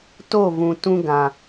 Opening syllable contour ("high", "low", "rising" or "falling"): falling